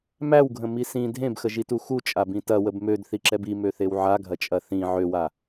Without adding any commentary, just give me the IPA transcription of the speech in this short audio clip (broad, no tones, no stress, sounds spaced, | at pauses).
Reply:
m æ w ɡʱ ə̃ m i s ĩ dʱ ẽ b x ə ʒ i t u x u t͡ʃʼ a b ĩ t ɐ w ə b m ø d θ i ǁ ɛ b i m ø θ e w ʕ a ɡʱ ɐ t͡ʃʼ ɐ θ ĩ ʕ ø w a